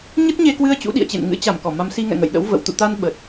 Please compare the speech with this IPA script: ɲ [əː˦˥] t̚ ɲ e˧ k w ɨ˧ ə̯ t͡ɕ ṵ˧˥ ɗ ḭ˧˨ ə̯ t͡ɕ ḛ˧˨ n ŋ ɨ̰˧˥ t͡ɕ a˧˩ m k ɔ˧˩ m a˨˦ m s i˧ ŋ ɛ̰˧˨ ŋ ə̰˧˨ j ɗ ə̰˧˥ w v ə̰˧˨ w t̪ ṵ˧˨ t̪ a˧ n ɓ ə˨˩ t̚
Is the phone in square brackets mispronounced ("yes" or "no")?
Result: yes